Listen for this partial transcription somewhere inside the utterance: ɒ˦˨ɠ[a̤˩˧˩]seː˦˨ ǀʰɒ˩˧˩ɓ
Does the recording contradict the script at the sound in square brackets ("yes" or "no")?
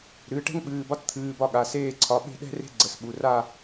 yes